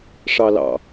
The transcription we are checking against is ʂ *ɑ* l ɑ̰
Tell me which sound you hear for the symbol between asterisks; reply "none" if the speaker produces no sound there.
ɑ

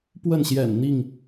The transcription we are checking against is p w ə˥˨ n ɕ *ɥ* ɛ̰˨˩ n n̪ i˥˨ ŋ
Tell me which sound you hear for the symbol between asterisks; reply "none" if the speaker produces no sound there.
j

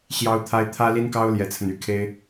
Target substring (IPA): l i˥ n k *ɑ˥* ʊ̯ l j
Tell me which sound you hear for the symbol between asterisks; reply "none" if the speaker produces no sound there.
ɑ˥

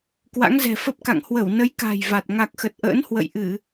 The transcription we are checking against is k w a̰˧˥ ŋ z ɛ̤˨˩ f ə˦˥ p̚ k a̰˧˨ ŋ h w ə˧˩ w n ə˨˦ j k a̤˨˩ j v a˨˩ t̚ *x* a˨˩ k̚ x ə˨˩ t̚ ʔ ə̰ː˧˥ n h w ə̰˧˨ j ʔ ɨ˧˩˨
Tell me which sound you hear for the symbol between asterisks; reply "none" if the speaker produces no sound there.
ŋ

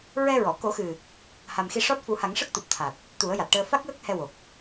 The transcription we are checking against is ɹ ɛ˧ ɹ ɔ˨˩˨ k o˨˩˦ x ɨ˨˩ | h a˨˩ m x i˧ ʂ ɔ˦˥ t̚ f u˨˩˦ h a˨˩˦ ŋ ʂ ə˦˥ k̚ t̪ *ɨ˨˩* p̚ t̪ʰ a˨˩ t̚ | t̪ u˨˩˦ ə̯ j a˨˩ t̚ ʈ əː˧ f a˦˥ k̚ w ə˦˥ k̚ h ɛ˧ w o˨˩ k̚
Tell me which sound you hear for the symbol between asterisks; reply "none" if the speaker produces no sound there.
ɨ˨˩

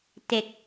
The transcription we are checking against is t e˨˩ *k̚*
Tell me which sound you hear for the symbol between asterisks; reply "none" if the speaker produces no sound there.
k̚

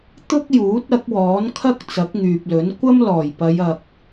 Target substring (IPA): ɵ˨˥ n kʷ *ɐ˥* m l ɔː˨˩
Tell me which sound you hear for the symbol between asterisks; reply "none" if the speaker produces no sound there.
ɐ˥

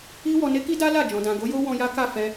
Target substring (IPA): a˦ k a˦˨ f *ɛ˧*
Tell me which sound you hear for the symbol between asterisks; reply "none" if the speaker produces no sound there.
ɛ˧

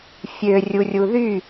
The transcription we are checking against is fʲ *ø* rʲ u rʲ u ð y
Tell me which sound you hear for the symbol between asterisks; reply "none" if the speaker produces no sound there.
ø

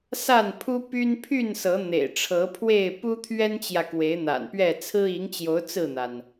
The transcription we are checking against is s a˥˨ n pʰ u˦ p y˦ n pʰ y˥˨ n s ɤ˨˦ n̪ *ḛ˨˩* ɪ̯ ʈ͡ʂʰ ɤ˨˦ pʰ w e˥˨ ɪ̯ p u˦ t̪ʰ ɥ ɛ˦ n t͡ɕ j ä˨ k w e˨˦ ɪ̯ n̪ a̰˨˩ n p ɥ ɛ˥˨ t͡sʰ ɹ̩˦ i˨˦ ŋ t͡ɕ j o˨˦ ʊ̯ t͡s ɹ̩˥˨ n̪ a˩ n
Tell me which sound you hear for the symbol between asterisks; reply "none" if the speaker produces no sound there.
ḛ˨˩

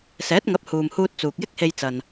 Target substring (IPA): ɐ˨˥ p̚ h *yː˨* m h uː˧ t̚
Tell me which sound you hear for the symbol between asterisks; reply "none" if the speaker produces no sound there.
uː˨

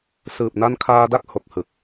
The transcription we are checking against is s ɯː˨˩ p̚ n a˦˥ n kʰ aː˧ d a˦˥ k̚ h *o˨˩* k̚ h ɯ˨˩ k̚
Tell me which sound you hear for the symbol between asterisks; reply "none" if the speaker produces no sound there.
o˨˩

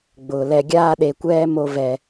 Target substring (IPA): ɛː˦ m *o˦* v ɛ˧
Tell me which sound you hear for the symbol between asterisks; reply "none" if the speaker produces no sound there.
o˦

